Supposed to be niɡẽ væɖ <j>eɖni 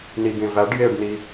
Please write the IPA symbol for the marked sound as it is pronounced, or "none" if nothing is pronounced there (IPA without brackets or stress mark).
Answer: j